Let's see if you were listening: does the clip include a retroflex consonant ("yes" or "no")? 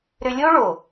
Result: yes